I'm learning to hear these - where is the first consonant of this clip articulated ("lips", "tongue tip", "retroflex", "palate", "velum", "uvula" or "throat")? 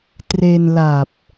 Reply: tongue tip